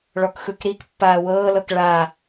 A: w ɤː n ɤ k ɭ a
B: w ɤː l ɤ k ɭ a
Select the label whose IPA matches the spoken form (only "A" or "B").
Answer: B